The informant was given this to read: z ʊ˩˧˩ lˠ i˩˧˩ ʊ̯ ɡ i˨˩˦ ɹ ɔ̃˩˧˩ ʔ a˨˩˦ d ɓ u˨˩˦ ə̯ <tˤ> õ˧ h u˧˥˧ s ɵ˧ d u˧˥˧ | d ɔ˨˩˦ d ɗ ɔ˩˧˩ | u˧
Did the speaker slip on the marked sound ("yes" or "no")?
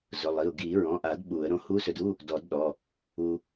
yes